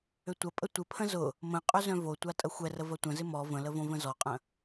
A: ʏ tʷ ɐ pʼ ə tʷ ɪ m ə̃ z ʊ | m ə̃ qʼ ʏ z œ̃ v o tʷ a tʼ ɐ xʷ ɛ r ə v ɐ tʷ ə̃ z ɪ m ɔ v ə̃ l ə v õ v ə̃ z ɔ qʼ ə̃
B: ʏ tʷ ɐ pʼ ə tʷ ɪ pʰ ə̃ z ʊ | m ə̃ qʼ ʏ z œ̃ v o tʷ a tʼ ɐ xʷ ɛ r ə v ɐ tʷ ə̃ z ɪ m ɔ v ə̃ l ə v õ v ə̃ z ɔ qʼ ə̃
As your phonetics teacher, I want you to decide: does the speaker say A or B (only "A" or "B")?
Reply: B